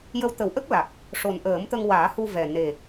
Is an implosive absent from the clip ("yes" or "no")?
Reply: yes